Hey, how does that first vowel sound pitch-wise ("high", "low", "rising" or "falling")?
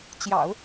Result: low